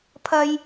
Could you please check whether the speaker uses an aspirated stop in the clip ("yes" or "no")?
yes